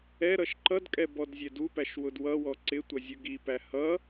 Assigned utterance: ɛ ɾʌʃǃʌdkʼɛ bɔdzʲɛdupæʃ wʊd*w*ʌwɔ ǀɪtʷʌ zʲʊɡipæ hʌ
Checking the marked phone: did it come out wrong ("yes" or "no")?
no